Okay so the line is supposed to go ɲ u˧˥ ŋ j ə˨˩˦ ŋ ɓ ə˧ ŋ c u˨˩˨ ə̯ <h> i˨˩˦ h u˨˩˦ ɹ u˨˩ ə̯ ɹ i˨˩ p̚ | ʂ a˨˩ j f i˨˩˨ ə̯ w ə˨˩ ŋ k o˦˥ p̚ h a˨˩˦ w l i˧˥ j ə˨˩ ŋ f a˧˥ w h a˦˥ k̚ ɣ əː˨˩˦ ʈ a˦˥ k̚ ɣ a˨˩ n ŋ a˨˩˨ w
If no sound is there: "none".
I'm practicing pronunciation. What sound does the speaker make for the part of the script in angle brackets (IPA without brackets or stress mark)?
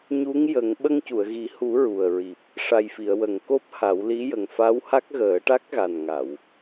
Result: ɣ